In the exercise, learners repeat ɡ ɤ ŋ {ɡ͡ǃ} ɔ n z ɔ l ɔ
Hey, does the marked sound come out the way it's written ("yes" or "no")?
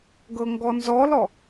no